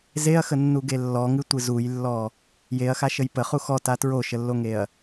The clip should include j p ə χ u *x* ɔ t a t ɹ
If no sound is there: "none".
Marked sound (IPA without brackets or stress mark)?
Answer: x